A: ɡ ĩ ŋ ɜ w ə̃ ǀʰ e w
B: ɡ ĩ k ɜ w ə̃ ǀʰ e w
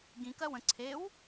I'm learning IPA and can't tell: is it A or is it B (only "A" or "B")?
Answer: B